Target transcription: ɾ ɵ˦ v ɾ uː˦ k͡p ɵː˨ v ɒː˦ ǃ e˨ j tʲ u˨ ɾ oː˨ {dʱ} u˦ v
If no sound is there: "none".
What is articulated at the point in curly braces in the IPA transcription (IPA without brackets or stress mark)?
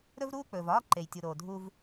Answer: dʱ